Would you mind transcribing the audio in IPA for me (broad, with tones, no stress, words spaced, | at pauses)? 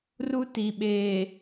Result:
ru˦ti˨ ɓeː˨